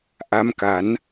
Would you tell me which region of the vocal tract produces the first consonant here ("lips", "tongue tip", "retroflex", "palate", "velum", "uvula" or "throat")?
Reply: throat